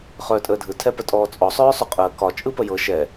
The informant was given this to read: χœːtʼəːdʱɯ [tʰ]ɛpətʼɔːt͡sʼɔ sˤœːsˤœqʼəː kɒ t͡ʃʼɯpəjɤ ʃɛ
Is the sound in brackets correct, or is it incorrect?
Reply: correct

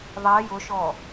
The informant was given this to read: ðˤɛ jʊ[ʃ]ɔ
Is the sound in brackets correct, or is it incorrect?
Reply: correct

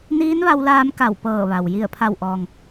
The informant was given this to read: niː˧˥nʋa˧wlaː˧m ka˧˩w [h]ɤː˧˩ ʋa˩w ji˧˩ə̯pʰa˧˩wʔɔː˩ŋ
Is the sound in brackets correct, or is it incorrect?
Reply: incorrect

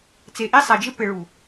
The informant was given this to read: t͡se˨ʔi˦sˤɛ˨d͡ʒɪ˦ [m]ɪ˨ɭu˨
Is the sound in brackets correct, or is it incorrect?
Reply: incorrect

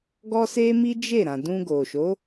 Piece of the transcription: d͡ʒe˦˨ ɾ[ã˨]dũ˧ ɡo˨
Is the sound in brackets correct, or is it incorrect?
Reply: correct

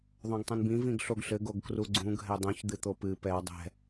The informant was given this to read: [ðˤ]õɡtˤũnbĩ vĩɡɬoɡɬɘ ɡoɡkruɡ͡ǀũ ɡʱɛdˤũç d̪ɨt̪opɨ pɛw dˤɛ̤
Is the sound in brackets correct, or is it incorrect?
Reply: correct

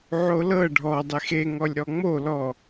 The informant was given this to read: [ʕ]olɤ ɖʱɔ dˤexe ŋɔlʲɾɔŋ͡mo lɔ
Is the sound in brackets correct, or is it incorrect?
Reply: correct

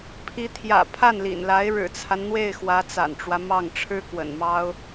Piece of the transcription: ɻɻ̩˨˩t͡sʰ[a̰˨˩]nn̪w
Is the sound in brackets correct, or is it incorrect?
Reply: incorrect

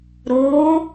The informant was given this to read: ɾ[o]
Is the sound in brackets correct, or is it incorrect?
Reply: correct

